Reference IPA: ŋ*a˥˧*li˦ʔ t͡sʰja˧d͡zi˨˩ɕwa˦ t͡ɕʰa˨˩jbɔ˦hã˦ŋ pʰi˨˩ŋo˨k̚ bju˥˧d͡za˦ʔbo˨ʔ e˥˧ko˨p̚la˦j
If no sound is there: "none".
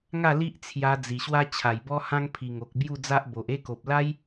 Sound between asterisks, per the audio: a˥˧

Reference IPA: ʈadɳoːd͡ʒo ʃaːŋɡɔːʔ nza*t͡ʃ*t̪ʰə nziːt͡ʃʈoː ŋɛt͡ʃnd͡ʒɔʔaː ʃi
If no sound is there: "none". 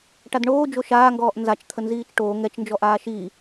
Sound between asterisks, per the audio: t͡ʃ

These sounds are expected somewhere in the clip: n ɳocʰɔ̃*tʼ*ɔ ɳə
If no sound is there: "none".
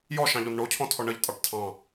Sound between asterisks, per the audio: tʰ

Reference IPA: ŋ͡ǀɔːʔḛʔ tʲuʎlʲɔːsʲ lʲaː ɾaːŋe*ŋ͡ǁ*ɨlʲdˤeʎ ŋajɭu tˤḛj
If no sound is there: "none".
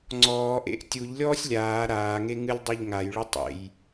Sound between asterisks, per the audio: ŋ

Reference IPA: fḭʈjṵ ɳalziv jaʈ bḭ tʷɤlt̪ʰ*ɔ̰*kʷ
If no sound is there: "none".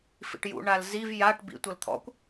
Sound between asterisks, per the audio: ɔ̰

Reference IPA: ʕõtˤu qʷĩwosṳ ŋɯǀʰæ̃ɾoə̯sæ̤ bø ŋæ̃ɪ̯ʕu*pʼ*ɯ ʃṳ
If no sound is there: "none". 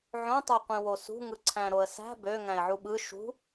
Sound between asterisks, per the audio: ɓ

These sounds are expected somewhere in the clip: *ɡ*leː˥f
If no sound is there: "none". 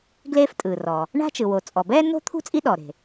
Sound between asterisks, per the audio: ɡ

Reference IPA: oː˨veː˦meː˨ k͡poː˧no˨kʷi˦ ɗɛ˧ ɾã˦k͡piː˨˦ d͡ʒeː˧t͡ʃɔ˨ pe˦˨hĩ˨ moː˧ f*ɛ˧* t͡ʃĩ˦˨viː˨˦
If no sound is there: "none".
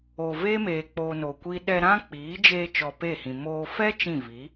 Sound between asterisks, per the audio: ɛ˦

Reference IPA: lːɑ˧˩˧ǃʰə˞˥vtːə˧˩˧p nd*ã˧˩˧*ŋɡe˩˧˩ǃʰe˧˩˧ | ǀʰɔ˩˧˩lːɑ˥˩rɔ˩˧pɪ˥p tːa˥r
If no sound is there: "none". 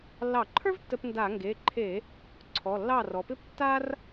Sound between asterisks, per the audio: a˧˩˧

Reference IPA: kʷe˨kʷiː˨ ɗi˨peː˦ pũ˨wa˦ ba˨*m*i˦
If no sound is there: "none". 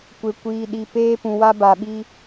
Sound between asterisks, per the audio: ɓ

